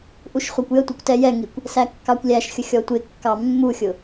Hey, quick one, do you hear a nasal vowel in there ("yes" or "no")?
no